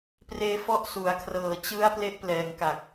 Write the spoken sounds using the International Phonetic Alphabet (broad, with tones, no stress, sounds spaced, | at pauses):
p r eː˧ f ɔ˦˥ ʔ s u˩˦ a̯ kʰ r ɤː˨˩ t͡ɕ ɯ˦˥ a̯ p l e˦˥ ʔ p l ɛː˨˩ ŋ k a˨˩ k̚